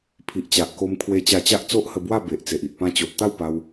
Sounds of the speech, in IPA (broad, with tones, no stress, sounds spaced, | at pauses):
pʰ i˨ ʔ t͡ɕ a˨ ʔ k o˧ m kʰ w e˧ t͡ɕ a˧ t͡ɕ a˦ ʔ t͡s o˦ ʔ h ə˧ b w a˥˧ b e˨ ʔ t͡s e˨ ʔ i˨ ʔ p ã˧ t͡ɕ o˨ ʔ t̪ a˥˧ w p a˧ w